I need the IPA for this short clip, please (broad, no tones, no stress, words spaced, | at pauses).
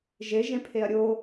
ʒeʒẽ pʰeɐ̯ɾʲo